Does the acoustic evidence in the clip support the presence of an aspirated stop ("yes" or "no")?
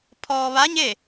yes